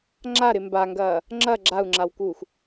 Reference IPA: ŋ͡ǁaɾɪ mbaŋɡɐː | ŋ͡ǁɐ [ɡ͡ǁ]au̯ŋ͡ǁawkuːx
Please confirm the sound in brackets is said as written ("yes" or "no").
yes